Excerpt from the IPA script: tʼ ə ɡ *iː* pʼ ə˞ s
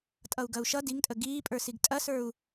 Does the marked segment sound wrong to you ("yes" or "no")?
no